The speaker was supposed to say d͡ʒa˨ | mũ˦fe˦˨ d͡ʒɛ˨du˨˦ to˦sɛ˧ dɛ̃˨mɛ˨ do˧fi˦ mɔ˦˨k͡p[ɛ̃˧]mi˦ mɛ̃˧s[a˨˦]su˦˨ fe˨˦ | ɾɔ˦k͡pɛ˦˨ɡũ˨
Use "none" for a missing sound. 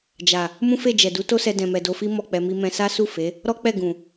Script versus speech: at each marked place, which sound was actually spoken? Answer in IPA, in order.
ɛ˧, a˦

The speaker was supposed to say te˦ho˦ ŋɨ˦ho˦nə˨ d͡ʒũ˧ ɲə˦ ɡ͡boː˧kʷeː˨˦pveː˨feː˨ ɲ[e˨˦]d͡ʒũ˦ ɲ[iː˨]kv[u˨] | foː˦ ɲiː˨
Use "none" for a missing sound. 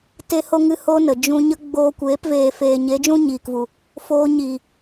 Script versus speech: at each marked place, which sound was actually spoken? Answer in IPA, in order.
e˨˦, iː˨, u˨

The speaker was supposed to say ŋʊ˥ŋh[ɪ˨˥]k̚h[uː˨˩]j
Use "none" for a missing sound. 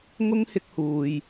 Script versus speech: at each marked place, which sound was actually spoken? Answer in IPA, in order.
ɪ˥, uː˧

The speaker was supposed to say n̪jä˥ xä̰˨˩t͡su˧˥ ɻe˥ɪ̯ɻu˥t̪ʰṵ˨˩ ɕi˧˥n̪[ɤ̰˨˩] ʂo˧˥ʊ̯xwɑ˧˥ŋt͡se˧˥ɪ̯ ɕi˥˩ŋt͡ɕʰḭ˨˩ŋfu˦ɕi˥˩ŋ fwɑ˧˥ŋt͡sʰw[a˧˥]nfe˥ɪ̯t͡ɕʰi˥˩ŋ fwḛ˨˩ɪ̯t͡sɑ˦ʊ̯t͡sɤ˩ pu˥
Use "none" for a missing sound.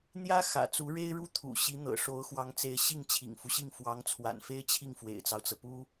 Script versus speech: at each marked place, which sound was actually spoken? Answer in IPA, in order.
ɤ̰˨˩, a̰˨˩

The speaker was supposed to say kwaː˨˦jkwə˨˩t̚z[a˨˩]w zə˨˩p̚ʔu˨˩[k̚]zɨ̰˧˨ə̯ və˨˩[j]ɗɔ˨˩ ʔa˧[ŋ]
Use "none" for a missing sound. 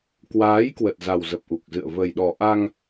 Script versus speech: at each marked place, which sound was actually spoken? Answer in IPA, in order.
a˨˩, k̚, j, ŋ

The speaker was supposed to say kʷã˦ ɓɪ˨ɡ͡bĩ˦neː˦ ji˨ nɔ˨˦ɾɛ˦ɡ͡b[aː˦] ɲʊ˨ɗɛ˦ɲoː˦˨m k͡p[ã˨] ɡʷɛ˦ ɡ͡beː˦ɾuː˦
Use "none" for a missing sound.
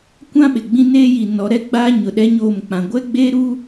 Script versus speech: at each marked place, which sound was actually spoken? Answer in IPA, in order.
aː˦, ã˨

